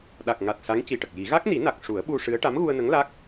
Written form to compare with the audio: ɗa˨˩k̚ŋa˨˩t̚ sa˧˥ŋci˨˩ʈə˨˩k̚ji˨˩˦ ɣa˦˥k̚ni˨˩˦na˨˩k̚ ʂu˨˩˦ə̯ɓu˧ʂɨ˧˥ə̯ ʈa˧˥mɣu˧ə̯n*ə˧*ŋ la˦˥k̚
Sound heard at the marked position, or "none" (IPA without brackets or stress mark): ə˧˥